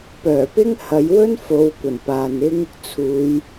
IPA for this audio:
p œː˨˩ p ɪ˥ ŋ h ɐ˨˧ j w ɵ˥ n f o˨˧ w kʷ ɐ˨˩ n p aː˨ n ɪ˥ ŋ | t͡sʰ uː˨˧ j

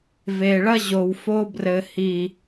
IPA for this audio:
v e˨ ɭ ɐ˦ ʑ o˨ w f o˧ b r ɘ˨ h i˨

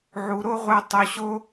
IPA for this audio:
ʕ u˧ ɾ o˦ ʁʷ ɜ˧ tˤ o˧ ɕ o˦

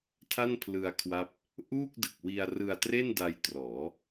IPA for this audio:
tʰ a˥˩ n pʰ l ɯ˧ a̯ kʰ w a˦˥ p̚ | ʔ uː˥˩ k̚ d ɯ˨˩ k̚ w i˧ a̯ r ɯ˧ a̯ t r e˥˩ n d a˧ j t r ɔː˩˦

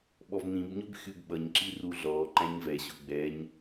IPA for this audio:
ɓ ɔ v n̪ ĩ b ɲ ʊ b xʲ u b ɓ ʌ ɲ ǁ i r u ɮ ɔ ǃ æ̃ ɲ v ɛ ɕ ʊ ɡ͡b ɛ ɲ

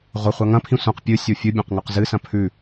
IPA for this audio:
ʁʷ ɐ χʷ a ŋ ɐ̃ pʰ ĩ sʷ ã q pʲ ɨ sʲ o fʲ ɨ bʲ ã q ŋ ʉ q z ɨ s ɐ̃ pʰ ʉ

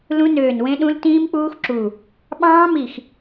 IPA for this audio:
l ũ˦˥ n øː˧˩ n w ẽ˦˥ ɗ ũ˦˥ l t ĩː˦˥ m k͡p uː˦˥ x ǁ u˧˩ | ɓ ɑ̃ː˦˥ m i˧˩ x

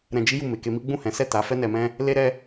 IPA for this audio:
ɾ ɛ̃˧ d͡ʒ i˦ j u˦˨ m e˨ k e˧ m i˦ ɡ͡b ũ˦˨ h ɛ̃˨˦ s ɛ˦˨ t a˨˦ f ɛ˦ n ɛ˧ m ɛ̃˦ | l e˦ ɾ ɛ˦

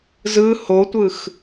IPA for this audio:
z ɯ h o tʷ ɯ x

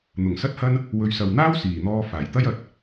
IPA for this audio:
n̪ ʊ˨˩ ŋ s ɐ˥ t̚ h ɐ˥ n | w ɵ˨˧ ɥ s ɐ˨ w n̪ aː˥ w s iː˨˩ n̪ ɔː˧ f aː˨˩ j t̪ ɐ˥ j ɐ˨ t̚

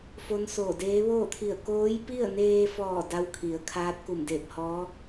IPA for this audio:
f o˧˥ n s oː˧˩ d eː˧˥ ʋ oː˥˨ t̪ʰ i˧˩ ə̯ k oː˧˥ j p i˥˨ ə̯ n eː˧ f ɔː˧˩ d a˧˥ w kʰ i˩˧ ə̯ kʰ aː˧˥ t̚ k u˧˩ m d eː˧˩ p̚ h ɔː˧˥

